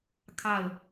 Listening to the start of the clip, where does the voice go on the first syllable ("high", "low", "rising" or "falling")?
falling